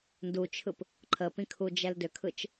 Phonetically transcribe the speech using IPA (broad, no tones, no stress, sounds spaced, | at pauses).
n d u t͡ʃʰ ɯ p | ǃʰ ə p ĩ kʰ u d͡ʒ ɛ l d ʏ kʰ ɯ t͡ʃ